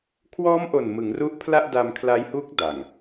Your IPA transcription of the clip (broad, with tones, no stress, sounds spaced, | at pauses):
kʰ w ɔː˦˥ m ʔ o˨˩ n m ɯ˩˦ ŋ r u˦˥ ʔ pʰ l a˥˩ ʔ d a˧ m kʰ l a˦˥ j h u˦˥ k̚ d a˨˩ ŋ